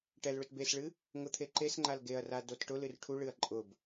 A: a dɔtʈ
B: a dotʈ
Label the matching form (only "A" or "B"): B